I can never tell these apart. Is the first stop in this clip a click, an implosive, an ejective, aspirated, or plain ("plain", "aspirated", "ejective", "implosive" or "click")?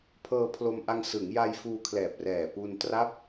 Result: aspirated